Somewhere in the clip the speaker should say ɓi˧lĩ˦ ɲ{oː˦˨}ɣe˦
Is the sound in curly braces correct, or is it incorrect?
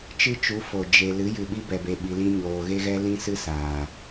incorrect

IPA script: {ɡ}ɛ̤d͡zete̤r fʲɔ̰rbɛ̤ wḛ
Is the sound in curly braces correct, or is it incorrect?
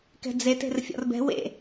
incorrect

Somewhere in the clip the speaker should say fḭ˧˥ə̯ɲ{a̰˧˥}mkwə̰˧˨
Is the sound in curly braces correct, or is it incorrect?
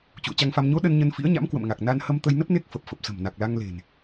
correct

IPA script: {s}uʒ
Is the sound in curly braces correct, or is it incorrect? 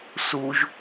correct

